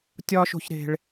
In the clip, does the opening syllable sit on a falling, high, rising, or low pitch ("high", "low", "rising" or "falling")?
high